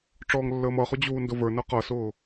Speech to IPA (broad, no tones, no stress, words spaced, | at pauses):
ʈ͡ʂɔːŋlːəːmʌχʊ d͡ʑuːndʊvə˞nʌ qʌsʊː